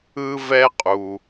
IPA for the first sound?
ɯ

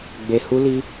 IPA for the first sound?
ɡ͡b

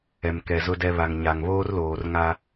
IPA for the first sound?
ɛ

